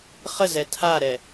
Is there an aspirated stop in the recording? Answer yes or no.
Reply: yes